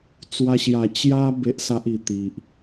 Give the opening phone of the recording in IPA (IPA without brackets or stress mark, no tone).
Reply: t͡s